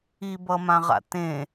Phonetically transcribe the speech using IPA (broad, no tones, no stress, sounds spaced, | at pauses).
i b ʌ m ã ʁ a̰ t ẽ